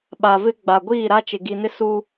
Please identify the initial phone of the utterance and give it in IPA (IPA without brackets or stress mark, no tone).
ɓ